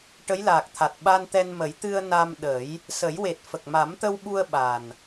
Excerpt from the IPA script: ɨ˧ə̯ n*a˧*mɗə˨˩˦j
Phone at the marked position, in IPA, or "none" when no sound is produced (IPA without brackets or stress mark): a˧